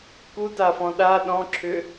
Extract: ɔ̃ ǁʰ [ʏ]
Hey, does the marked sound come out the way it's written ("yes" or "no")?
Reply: yes